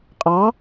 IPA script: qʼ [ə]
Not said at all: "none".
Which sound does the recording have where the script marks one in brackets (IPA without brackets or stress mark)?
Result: ɑ